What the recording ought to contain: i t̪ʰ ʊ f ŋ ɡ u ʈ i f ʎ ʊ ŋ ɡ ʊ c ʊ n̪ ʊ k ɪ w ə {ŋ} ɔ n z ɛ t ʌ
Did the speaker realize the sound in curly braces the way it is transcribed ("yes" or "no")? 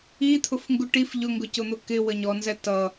no